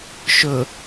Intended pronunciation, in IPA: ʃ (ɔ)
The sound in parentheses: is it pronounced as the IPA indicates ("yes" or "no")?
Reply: no